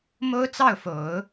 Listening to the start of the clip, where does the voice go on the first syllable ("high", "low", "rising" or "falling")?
high